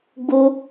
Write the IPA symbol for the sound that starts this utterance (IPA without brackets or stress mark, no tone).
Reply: ɡ͡b